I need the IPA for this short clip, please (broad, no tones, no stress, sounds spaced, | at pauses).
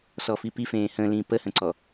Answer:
s ɔ f i p i f ẽː h ə̃ː l ĩː p ə h ə̃ ǀ ɔ